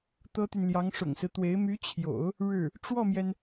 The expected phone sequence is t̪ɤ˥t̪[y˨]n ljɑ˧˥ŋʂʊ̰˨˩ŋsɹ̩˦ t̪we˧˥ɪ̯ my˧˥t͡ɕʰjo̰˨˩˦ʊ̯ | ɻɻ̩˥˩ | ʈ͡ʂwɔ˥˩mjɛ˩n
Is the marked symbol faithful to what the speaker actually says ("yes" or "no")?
yes